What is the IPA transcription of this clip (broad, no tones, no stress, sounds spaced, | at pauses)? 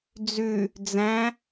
d͡z ʉ | d͡z æ̃